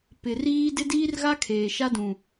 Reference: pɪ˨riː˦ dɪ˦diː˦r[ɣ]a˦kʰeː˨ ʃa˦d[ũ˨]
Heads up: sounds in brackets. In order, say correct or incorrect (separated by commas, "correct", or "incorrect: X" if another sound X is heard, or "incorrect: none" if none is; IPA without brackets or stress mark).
correct, correct